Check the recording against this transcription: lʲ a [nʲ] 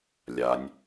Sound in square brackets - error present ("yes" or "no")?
no